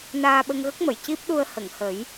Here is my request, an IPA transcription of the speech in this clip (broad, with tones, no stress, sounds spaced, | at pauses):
n aː˧ ɓ ə˧ ŋ ɣ ə˦˥ k̚ m ə˨˩˨ j c i˦˥ p̚ ɗ u˧ ə̯ h ə˨˩˨ ŋ h ə˨˩˦ j